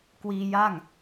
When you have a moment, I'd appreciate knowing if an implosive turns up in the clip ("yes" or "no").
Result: no